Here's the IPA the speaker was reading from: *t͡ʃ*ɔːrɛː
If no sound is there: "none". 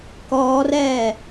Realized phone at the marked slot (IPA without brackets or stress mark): k